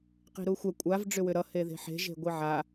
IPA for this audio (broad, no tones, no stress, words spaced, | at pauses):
qi̤ɾuxʷɛ kʷʼav ɖ͡ʐʏwʏɾʌ heðe̤ħe̤ ʒe̤ɡʷiʕa